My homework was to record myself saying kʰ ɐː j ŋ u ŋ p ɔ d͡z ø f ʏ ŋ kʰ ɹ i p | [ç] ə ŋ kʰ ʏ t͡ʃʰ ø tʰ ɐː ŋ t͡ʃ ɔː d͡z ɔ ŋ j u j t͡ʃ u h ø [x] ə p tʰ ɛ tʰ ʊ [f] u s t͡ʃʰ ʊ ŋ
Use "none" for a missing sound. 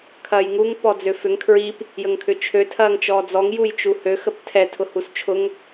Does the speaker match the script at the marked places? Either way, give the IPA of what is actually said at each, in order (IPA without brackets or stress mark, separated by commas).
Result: j, x, h